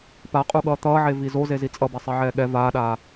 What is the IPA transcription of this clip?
p a qʼ u ɠ ʌː t̪ ʌː ʕ e v i z o z e z i t͡sʼ ʌ b ɛ sˤ e ʕ ɛː ɠ ɛ v aː ɗ aː

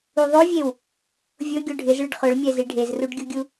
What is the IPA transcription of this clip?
u ðˤ o vʲ e w | vʲ ʊ ɡʲ o ɖʱ ɪ z ɭ ɪ ɖ χ ʊ ɭ mʲ ɛ z i ɖʱ e z r u ɖ ɡʲ u ɡʲ u

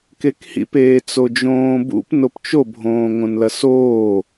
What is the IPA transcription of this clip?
k e k h ḭ p eː t͡s o d͡ʒ õː b ṵ p n o p t͡ʃ o bʱ õː ŋ õ n l ɐ s oː

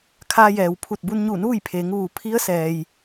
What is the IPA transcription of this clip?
kʰ aː˧ j ɛː˩ w pʰ u˧˩ t̚ b u˧ n ɲ u˧˩ n uː˥˨ j pʰ eː˩˧ ŋ ʋ uː˩ pʰ i˧˥ ə̯ s ɛː˩ j

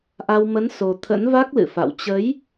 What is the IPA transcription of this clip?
ʔ a˧ w m ə˨˦ n s o˨˩ t̪ʰ ə̰˧˥ n v a˦˥ k̚ l ɨ̰˧˨ f a̰˧˨ w t͡ɕ ə˨˦ j

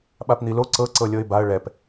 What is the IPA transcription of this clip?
ɓ a p n̪ i l o ǀ ɤ ǀ ɤ lʲ ɤ ɪ̯ b a ə̯ ɭ ɛ p

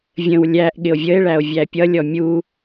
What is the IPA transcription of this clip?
vʲ ə̃ w lʲ æ ʔ ɠ ɪ o̯ vʲ ə e̯ ɭ æ o̯ vʲ æ pʲ ʌ lʲ ɔ mʲ u

